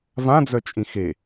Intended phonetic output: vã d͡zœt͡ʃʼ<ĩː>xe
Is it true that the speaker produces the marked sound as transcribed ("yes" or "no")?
no